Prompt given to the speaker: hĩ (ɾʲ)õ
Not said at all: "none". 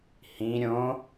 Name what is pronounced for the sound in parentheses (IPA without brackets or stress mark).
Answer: ɾʲ